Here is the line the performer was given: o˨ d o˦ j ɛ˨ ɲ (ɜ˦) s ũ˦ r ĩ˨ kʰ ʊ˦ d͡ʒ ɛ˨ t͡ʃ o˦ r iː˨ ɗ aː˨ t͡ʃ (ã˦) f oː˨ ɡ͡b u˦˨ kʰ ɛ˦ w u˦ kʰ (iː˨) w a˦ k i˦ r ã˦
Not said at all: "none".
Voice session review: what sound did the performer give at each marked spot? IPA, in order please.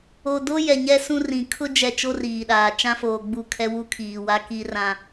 ɛ˦, ã˦, iː˨

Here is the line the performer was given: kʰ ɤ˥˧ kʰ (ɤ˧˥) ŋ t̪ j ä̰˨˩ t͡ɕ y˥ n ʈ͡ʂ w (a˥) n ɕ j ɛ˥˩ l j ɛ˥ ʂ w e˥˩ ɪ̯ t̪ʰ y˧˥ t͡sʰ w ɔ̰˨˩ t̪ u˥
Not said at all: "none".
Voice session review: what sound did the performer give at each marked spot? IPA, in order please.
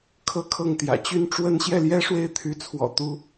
ɤ˥˩, ə˥

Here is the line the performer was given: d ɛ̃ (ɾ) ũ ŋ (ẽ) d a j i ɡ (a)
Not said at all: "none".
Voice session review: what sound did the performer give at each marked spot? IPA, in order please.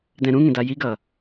ɾ, ẽ, ʌ

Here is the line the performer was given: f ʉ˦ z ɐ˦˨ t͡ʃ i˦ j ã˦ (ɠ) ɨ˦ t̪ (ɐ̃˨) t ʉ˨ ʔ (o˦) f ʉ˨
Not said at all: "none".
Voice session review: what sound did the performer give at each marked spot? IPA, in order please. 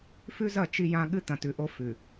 ɠ, ɐ̃˨, o˦

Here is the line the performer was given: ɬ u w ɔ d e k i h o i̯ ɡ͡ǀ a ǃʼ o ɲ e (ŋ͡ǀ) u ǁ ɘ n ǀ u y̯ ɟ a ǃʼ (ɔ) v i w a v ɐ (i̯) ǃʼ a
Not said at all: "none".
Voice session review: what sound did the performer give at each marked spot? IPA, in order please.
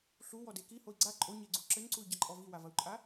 ɡ͡ǀ, ɔ, u̯

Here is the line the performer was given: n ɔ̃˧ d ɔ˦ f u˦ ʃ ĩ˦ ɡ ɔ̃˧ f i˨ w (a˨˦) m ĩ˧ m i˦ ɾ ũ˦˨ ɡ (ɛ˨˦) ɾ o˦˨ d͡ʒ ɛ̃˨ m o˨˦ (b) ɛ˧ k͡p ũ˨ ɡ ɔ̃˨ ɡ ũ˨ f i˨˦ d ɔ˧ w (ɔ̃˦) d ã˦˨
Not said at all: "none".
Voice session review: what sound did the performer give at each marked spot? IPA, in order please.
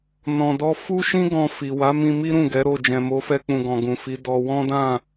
a˨˦, ɛ˨˦, f, ɔ̃˦

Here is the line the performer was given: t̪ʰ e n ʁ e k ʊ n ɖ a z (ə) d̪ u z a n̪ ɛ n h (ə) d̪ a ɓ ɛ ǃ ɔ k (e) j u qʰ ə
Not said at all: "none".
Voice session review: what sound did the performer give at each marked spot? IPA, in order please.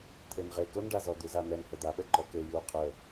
ɔ, ə, e

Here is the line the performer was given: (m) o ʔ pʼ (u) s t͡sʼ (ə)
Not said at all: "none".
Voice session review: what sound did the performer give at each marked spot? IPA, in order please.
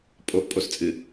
pʼ, o, ɨ

